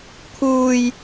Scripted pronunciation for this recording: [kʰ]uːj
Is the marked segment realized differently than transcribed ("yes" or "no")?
no